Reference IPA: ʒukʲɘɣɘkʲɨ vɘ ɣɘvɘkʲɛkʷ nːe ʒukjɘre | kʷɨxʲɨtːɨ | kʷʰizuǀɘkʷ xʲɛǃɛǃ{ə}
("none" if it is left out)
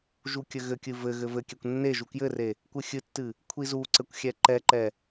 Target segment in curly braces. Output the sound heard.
ɛ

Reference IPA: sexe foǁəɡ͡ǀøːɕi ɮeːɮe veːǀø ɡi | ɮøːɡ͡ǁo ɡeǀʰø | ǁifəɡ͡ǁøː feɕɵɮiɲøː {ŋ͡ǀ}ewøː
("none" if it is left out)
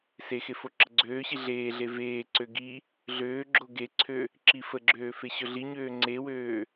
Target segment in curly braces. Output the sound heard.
ŋ͡ǀ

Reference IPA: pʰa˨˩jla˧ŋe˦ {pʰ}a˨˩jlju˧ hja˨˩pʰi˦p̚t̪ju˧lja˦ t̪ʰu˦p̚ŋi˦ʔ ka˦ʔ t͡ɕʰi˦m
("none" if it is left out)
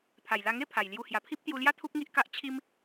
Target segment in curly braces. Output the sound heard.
pʰ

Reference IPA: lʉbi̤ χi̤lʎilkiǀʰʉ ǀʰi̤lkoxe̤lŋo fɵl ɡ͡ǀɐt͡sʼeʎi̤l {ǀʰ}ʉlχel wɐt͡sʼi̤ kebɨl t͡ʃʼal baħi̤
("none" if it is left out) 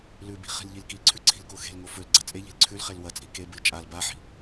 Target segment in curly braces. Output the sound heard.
ǀʰ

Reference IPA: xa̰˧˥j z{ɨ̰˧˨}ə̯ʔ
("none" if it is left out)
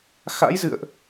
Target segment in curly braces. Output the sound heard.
ɨ̰˧˨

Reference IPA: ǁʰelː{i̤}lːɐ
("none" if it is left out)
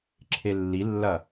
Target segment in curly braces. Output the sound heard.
i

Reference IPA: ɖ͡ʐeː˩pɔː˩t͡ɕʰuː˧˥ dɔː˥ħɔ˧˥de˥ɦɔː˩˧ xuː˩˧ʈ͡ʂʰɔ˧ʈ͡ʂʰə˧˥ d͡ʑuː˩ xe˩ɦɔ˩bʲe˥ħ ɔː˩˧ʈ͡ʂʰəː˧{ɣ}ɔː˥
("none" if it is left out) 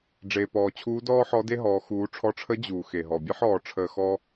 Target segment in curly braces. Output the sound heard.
x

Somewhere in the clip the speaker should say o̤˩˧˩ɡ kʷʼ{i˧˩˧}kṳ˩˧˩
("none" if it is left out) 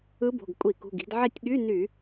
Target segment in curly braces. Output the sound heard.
i˧˩˧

